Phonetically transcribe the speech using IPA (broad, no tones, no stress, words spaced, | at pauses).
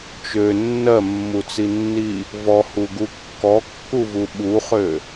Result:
t͡ʃø nːɜmːut͡sinːi | vɔhuɡu kːɔkːuvu ɓuχø